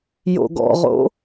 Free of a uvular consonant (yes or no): no